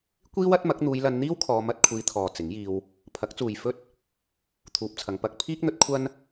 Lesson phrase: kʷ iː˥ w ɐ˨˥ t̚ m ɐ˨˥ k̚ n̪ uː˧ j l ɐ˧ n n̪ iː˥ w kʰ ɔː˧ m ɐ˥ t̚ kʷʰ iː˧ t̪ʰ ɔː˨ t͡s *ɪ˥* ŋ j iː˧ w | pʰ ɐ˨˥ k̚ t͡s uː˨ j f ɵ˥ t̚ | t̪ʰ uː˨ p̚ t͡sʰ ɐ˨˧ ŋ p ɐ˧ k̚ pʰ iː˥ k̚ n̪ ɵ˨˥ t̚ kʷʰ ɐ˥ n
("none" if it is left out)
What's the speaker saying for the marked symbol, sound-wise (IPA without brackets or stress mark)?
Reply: ɪ˨˥